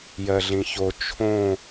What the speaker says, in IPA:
j ɜ ɮ ĩ ç o t͡ʃʰ õ

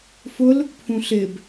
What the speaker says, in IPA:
f ʊ l | pʰ ũ ɬ ɪ b

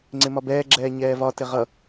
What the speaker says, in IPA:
ŋ͡ǀ ɪ m ɒ b ɛː ɡ͡ǁ ɛː ɲ ɛː v ɒ t ɪ ʁ ʌ

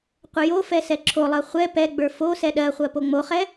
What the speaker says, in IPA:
qʷ ə j o f ɛ s ɛ ǁʰ o lˠ ɜ χʷ ɛ p ɛ ɡ͡b ə˞ f o s ɛ ɗ ɜ χʷ ɜ p o ŋ͡m o χ ɛ

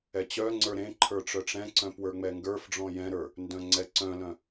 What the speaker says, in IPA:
ɛ t͡ɕ œ ŋ͡ǀ ə˞ ɾ ẽ ǃʰ ə˞ ʈ͡ʂ œ ʈ͡ʂ ɛ̃ ǀ œ̃ p w ə˞ ŋ͡m ɛ ŋ ɡ ə˞ f ɖ͡ʐ ɔ̃ j ɛ̃ ɾ ə˞ | n d œ̃ ŋ͡ǀ ɛ ǀ œ̃ l œ̃

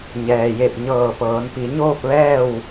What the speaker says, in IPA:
ɲ ɛː˩ j e˧˩ p̚ ɲ ɤː˧˩ p ɤː˩˧ n p i˩˧ ɲ oː˥˨ p̚ ʋ ɛː˥˨ w

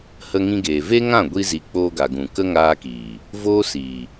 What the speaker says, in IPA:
h ə˧ ŋ ĩ˧ ɡ eː˨ v e˦ ŋ ã˦˨ ɡʷ i˧ z i˨ k͡p oː˧ ɡ a˨ ɡ ũ˨ k ə˦ ŋ aː˧ k iː˨ | v oː˦ s iː˨

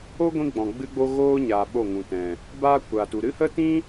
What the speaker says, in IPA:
o˦ ɡʷ ĩ˦ ɡ͡b ɔ̃˨ ɡ͡b ɨ˦ ɡ͡b o˦ ɣ oː˦ ɲ aː˨ ɓ o˦˨ ŋ ũ˨ t ɛ̃˨ | b a˦ kʷ a˨ t u˨ ɾ ɨ˦ h ə˦ t ĩ˦

